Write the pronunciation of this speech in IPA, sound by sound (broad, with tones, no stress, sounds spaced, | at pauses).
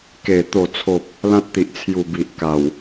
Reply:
k e˨˩ t̪ o˨˩ t͡sʰ o˨ p̚ | l ã˦ t̚ t̪ i˨ ʔ t͡sʰ j u˨˩ b i˨ ʔ k a˨˩ w